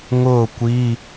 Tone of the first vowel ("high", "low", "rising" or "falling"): falling